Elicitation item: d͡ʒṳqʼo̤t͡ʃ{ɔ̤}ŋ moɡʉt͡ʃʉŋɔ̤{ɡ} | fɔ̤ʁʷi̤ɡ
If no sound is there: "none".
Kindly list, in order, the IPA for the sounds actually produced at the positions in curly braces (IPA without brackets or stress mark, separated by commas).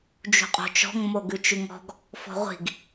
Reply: ɔ̤, ɡ